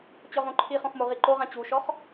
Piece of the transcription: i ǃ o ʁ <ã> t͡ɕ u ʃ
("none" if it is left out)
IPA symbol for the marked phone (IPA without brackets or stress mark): ã